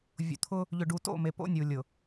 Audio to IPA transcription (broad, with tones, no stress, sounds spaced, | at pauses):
vʲ o̰˨ t̪ʰ ʊː˦ | ʎ ʏ˨ ɖ u˨ t o̰˦˨ m e˨ p o̰˦ nʲ uː˨ lʲ ʊ˨